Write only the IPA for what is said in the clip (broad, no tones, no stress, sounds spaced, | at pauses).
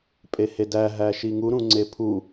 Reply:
pʼ e h e d æ ɦ æ ʃ i ŋ u ɾ ũ ŋ͡ǀ e pʰ u